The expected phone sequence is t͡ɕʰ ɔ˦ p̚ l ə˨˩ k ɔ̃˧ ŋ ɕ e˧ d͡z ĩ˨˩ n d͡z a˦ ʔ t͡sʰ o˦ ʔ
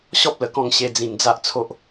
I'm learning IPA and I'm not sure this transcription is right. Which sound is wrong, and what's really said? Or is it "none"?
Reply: t͡ɕʰ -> ɕ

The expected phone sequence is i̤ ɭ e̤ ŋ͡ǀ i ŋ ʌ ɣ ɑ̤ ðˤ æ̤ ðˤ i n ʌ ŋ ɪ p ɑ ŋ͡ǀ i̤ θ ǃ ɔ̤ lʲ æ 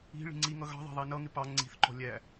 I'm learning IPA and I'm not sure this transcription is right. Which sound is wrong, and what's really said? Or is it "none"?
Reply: e̤ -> i̤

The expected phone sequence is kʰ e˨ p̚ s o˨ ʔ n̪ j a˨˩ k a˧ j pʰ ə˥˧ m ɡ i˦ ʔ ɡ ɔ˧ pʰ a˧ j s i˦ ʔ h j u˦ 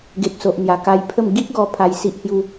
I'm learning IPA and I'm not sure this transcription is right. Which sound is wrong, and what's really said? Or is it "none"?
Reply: kʰ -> ɡ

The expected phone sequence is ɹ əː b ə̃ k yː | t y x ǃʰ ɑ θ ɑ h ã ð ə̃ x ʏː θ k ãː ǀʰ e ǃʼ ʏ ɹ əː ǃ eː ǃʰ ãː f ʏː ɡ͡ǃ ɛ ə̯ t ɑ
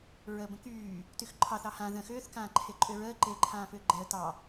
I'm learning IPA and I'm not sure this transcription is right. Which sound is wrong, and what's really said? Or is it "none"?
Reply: ǀʰ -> ǃʰ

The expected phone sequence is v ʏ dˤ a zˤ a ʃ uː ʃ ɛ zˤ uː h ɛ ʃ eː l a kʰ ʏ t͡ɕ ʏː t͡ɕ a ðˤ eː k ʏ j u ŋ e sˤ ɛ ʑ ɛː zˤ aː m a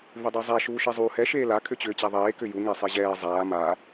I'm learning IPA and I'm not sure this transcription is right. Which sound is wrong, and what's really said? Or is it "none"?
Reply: none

